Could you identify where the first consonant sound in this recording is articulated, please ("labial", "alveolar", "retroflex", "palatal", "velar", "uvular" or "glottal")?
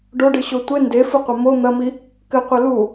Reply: retroflex